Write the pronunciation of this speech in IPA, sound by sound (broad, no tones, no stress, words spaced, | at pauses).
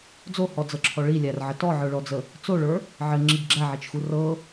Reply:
d͡zohɔd͡zɤǁʰɔ ɭilʲærʕə tɔʕə˞ɭɔd͡zə | t͡soɭə˞ | ʕɘŋ͡ǁiɡ ɡ͡ǁæʕet͡ʃxu rɤ